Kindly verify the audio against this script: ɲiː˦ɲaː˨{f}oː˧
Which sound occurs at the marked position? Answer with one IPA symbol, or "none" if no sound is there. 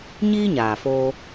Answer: f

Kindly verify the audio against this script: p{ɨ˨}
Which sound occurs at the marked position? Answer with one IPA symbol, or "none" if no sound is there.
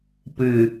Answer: ɨ˨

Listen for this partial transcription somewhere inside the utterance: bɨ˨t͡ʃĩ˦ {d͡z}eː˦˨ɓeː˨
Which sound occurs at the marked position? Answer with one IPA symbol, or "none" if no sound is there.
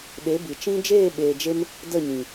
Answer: d͡ʒ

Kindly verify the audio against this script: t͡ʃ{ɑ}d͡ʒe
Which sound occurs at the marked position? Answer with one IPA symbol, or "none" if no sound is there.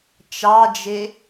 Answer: ɑ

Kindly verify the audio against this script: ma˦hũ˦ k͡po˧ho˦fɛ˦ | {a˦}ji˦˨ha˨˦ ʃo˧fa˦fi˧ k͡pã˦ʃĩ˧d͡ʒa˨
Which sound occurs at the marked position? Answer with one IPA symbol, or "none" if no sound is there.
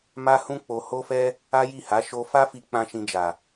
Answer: a˦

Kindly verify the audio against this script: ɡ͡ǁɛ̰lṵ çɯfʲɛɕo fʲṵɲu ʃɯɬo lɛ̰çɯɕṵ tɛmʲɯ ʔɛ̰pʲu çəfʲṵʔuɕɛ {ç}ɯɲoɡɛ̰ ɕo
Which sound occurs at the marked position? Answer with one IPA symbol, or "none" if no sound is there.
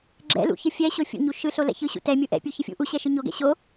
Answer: ʃ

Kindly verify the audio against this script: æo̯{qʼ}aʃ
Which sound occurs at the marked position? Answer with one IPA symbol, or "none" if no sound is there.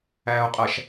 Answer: qʼ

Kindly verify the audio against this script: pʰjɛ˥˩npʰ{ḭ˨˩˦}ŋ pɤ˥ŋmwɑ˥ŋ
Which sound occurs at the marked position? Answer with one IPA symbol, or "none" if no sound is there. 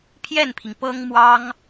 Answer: i˩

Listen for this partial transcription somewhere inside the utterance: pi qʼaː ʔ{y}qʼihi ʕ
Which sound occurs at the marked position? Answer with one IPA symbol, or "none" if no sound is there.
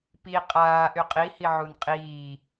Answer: y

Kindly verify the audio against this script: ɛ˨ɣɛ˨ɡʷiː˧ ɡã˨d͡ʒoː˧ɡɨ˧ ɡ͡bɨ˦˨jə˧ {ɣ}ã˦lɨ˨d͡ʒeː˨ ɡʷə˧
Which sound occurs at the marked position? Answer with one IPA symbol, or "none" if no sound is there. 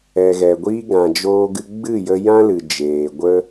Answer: j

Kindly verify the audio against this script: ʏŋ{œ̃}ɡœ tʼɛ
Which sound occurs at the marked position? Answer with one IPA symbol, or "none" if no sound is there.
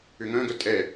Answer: œ̃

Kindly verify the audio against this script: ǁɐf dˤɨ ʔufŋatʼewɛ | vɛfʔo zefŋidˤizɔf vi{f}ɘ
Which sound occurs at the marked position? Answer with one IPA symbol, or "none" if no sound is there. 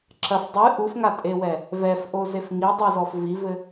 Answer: v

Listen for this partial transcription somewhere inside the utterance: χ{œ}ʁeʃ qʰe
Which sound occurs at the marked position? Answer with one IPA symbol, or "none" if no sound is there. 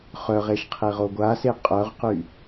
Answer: œ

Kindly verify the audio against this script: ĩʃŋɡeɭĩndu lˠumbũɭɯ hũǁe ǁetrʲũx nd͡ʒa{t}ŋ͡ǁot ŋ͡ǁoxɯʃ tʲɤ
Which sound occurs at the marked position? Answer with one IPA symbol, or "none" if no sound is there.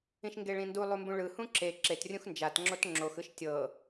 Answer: t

